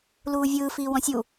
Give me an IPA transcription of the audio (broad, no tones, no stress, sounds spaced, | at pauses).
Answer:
l uː vʲ ɯː f iː w ɔ̃ sʲ u